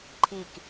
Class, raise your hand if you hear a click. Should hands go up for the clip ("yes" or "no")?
yes